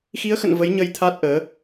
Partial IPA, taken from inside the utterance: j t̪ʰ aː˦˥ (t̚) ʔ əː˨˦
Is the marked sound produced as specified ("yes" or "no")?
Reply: yes